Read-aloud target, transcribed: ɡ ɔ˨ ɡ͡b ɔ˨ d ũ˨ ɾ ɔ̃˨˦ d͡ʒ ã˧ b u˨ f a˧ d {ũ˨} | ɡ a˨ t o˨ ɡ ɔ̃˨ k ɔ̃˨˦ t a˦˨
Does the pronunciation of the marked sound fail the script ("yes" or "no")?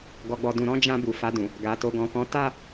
no